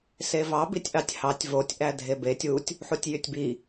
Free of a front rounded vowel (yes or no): no